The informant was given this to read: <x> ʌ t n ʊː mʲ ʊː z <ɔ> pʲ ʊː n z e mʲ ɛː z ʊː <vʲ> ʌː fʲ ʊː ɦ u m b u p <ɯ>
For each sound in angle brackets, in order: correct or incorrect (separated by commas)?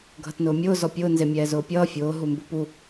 incorrect, correct, incorrect, incorrect